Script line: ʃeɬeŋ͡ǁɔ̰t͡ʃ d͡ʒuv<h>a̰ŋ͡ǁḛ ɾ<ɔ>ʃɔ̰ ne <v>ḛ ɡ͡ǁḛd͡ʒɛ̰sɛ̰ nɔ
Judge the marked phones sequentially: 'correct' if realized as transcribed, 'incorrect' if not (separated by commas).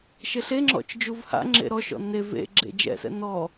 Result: correct, correct, correct